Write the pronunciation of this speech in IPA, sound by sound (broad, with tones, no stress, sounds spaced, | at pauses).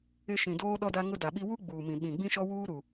ɪ˦ ʃ ĩ˨ d oː˦ ɗ ɔ˦ d a˦ ŋ ʊ˦ d a˨ ɓ i˦ w u˦ ɡ͡b uː˨ m ĩ˨ ɓ ĩ˨ ɡ͡b ĩ˦ ʃ ɔ˦ w uː˦ ɾ u˨